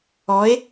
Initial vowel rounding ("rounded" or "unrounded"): rounded